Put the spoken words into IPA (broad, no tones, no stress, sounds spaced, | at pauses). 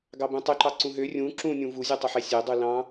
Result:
ɡ ɑ b ũ tˤ y ǃ ɑ ǀ ũ ɦ ø rʲ ũ ǁ ũ nʲ ũ v u zʲ u tˤ o ħ e sʲ ø dˤ u l ɑ̃